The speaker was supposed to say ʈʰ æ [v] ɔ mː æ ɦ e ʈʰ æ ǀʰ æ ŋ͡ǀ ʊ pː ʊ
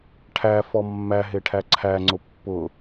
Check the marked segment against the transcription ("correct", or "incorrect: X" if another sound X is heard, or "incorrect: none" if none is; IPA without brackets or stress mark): incorrect: f